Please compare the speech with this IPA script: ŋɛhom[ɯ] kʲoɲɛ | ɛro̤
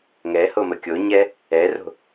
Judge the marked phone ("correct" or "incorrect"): incorrect